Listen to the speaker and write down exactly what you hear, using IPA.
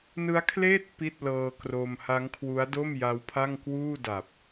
n ɯ˦˥ a̯ kʰ l eː˥˩ t̚ p i˥˩ t̚ l ɤː˧ k r o˧ m h a˦˥ ŋ kʰ w u˦˥ a̯ d o˥˩ m j a˦˥ w pʰ a˥˩ ŋ k w uː˥˩ d a˨˩ p̚

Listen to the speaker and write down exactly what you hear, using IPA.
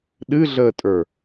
ɗ ɨ ɮ əː tʼ ə˞

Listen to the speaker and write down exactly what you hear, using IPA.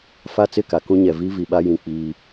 f a˦ t͡s ɪ˦˨ k a˨ k ũ˦ ɲ ɛ˨ v i˦ v i˨ ɓ a˦ j ĩ˨ k͡p iː˦

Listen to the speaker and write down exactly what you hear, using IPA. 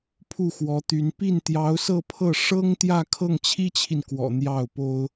pʰ u˥˩ x w ɔ˧˥ t̪ y˧˥ n p i˥˩ n t̪ j ɑ˧˥ ʊ̯ s ɤ˥˧ pʰ ɤ˥˩ ʂ ɤ˥ ŋ t̪ j ä˥˧ kʰ ɤ˥˩ ŋ t͡ɕʰ i˥ t͡ɕʰ i˨ n k w ɔ̰˨˩ n̪ j ɑ˥˩ ʊ̯ p o˥ ʊ̯

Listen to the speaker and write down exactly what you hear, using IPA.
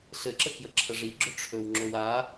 ɬ ɘ ǁ ə k j ə ǁʰ ə ʐ i ɡ͡ǁ ɵ ʈ͡ʂʰ ɵ w ŋ͡ǁ ɵ w a

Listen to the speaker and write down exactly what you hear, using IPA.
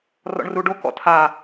r ɔ̰ ɳ r u ɖ o k ɔ̰ tʰ a

